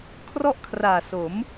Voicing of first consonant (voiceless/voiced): voiceless